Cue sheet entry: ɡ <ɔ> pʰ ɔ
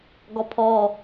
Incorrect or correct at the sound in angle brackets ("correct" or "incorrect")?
correct